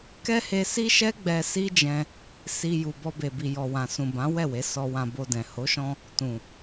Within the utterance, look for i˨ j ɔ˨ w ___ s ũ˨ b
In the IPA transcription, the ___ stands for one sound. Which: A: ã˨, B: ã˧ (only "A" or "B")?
A